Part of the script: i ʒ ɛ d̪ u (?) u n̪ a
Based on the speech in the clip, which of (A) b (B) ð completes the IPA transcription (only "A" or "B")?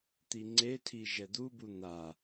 A